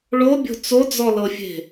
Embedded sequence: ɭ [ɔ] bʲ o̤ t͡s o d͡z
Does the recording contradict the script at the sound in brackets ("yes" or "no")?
yes